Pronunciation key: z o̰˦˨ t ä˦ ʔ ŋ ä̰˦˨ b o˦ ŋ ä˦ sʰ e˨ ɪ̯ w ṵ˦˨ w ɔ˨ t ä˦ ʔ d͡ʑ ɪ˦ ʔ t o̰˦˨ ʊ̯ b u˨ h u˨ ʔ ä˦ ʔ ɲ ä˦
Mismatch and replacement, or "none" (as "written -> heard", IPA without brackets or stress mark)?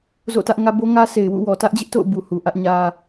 ä̰˦˨ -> ä˦